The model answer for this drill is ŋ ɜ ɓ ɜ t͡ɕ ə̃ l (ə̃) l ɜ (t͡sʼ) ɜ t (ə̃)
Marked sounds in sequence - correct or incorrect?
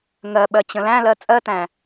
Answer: incorrect: æ̃, correct, incorrect: æ̃

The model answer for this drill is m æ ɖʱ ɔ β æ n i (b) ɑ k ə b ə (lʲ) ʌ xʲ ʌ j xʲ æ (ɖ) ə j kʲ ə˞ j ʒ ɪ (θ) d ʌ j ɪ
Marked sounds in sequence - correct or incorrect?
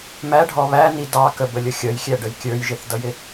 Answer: incorrect: d, correct, correct, correct

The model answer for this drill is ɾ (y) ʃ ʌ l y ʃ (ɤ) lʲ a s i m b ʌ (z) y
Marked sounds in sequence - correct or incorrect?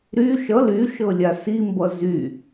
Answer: correct, correct, correct

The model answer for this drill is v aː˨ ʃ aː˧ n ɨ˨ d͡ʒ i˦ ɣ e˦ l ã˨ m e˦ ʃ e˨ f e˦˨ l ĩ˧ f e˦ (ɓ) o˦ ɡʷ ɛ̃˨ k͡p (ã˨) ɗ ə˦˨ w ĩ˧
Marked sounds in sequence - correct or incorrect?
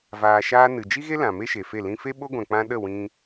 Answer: correct, incorrect: ã˧

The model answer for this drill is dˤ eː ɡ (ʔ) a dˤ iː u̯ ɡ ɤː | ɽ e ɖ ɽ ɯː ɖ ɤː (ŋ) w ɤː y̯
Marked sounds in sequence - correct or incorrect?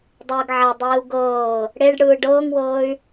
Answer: incorrect: ʕ, correct

